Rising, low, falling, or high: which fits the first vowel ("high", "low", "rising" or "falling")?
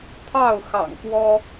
falling